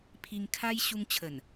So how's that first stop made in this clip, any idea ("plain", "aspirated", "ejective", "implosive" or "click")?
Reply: aspirated